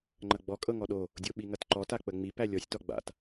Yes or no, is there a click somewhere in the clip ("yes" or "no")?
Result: yes